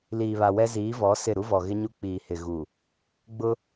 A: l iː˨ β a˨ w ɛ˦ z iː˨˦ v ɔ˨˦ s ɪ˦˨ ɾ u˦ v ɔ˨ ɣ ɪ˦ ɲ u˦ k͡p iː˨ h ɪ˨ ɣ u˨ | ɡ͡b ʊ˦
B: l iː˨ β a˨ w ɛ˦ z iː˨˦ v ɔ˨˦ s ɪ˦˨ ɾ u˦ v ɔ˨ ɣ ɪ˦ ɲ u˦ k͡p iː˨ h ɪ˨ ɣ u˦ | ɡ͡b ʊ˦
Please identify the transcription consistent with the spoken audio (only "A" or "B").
A